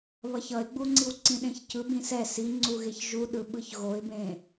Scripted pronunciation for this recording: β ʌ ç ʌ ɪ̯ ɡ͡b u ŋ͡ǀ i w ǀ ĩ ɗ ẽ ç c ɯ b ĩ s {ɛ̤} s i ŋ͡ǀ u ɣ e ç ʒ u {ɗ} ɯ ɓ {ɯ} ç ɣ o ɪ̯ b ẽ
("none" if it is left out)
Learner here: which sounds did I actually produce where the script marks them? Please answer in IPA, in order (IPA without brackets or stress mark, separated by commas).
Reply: ɛ, ɗ, ɯ